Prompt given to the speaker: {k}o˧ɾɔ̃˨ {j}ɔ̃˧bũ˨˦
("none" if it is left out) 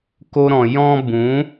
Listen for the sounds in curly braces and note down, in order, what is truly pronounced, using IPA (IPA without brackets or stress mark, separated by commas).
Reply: k, j